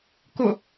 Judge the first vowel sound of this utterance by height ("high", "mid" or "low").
high